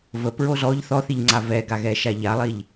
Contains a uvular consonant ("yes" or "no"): no